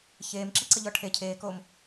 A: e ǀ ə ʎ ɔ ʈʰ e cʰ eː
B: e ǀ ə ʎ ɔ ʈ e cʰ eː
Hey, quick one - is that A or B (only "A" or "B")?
A